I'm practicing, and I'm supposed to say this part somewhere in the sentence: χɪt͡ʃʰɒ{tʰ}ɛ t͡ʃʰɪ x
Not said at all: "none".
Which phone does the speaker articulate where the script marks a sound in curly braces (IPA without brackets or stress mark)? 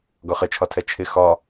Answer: tʰ